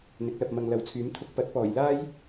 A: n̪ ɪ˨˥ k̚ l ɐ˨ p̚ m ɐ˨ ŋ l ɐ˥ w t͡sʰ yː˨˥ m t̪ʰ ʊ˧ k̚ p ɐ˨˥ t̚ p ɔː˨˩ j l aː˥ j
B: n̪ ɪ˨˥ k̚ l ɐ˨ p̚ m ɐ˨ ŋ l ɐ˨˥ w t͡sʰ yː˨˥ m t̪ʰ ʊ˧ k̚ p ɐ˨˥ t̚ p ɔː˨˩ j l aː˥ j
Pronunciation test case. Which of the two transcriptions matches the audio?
B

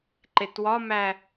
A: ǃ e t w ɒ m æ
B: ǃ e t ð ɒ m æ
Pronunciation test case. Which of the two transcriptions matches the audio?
A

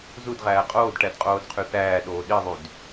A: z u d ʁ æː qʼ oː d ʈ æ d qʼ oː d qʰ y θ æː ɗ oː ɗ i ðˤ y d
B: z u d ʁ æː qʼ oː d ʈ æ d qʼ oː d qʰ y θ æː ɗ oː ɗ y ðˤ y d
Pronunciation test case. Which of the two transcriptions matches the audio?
A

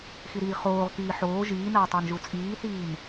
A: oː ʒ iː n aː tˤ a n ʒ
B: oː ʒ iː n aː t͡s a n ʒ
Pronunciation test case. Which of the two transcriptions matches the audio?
A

